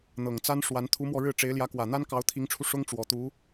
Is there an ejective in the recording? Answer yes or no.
no